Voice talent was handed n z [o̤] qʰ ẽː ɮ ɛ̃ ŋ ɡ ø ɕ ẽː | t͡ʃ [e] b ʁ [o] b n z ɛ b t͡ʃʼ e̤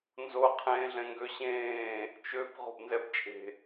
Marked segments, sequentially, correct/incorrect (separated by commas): incorrect, incorrect, incorrect